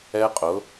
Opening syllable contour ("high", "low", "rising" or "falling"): high